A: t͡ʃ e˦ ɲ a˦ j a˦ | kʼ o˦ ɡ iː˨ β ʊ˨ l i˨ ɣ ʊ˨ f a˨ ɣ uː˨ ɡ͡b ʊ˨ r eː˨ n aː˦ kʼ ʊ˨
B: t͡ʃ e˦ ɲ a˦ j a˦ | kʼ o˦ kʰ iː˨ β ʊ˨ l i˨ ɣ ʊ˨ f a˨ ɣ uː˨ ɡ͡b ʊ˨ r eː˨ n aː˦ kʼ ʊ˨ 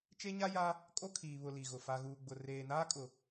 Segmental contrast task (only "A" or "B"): B